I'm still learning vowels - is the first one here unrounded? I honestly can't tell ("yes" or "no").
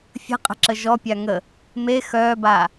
yes